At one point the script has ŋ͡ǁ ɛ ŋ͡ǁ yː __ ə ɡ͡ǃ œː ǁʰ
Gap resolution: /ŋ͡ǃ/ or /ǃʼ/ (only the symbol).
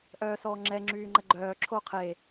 ŋ͡ǃ